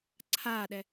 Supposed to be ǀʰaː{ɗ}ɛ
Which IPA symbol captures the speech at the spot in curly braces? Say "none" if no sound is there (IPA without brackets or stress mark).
ɗ